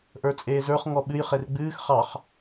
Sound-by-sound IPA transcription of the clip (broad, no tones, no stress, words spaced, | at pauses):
ʔə˞t͡sʼeːzə˞χ ŋɔɓɨj χerɡ͡bɨːx χɑχ